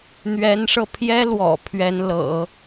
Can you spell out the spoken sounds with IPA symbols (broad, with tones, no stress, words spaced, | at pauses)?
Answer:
n̪ɥɛ˧˥nʂɤ˧pʰjɛ˥ lwɔ̰˨˩pʰɥɛ˧˥nlɤ̰˨˩˦